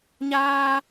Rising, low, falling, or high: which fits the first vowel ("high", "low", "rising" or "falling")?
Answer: high